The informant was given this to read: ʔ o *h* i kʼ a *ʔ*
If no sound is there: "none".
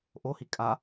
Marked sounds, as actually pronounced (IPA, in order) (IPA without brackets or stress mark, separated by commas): h, none